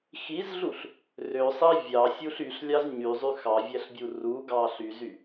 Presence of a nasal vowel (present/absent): absent